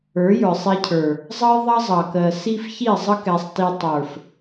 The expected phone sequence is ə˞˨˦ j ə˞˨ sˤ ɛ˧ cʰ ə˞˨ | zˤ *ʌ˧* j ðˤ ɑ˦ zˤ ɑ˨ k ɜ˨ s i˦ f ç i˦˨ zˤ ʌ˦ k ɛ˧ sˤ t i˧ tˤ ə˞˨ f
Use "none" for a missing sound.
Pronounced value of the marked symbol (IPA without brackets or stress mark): ʌ˦